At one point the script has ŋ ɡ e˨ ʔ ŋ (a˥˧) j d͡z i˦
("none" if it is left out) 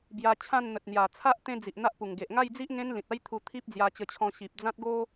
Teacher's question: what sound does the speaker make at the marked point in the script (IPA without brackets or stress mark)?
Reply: a˥˧